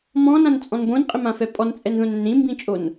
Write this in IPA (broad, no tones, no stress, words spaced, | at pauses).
mɔ̃nãnt͡sʼɔ̃n bõnqʼɪmãfɛ pʼɔnt͡sʼɛnðõnɛ̃n ɾĩmbĩt͡ʃʼon